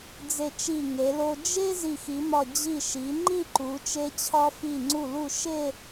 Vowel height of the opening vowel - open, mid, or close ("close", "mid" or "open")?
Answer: mid